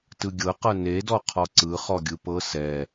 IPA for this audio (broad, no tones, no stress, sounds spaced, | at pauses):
t ɯ ɡʲ ɤ q ɤ n e d ɔ qʰ ɔ ǀ ɯ χ ɔ ɡʲ ɯ p ɤ s ɛ